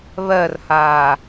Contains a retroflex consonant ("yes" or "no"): no